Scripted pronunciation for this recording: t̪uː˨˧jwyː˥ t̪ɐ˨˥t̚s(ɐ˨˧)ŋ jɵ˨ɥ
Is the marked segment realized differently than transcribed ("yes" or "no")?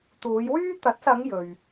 no